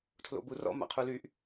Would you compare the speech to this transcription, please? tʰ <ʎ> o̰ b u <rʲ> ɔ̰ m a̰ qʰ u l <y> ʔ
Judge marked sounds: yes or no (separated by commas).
no, no, yes